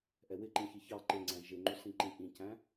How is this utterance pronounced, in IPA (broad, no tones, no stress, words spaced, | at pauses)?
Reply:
ʔɛwɪǃĩ çiçɑ ǃɪŋ͡ǀæ̃ ʒɪŋ͡ǃusĩǃĩ ʔĩcæ̃